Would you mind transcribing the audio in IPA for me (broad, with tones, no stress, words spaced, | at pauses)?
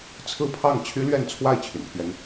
t͡sʰɹ̩˥˧pʰɑ˥˩ŋ t͡ɕʰy˥lɥɛ˥˧nt͡sʰwa˥˩ɪ̯ t͡ɕʰy̰˨˩npʰɥɛ˥n